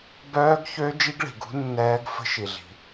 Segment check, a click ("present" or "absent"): absent